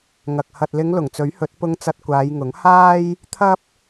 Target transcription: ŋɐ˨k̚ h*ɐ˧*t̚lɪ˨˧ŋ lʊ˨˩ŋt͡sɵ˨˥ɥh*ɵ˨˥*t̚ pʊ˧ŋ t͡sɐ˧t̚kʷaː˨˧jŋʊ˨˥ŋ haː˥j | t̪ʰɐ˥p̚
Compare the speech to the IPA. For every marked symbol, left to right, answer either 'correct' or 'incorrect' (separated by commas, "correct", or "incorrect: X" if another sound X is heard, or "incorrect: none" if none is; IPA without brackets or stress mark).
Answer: incorrect: ɐ˨, correct